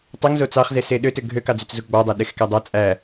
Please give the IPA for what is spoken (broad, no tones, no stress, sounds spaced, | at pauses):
tˤ ø ŋ z o t͡s ɑ χ z e s e ɗ ø t ø ɡʱ ø k ɑ d͡z ø t͡s z u ɡ͡b ɑ dˤ æ ɗ e x k æ dˤ ɑ t͡sʼ æ